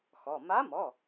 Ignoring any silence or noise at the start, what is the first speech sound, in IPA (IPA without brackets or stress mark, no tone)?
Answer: x